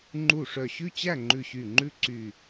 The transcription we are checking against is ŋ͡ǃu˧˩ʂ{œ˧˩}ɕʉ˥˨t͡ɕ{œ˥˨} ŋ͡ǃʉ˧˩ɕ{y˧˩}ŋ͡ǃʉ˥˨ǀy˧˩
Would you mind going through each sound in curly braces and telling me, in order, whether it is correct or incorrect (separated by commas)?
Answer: correct, incorrect, correct